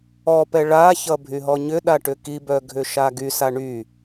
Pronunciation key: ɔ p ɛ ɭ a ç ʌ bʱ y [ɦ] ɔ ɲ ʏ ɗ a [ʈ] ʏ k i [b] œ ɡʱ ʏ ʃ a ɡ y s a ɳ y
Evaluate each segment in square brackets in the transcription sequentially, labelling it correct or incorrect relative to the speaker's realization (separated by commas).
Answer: correct, correct, correct